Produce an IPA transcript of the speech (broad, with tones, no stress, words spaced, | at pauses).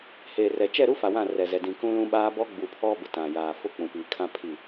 heː˨rɛ˨ t͡ʃɛ˦˨ɾu˦fa˨ wã˦˨rɛ˨zɛ˨ dĩ˨kũ˦lũ˦ ɓaː˦bɔ˦ ɡ͡bu˨pʰɔ˦ bʊ˨tã˨ jaː˨fʊ˦k͡pũ˨piː˨ kʰã˦pʰi˦˨